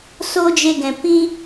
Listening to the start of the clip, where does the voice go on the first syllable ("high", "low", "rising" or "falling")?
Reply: high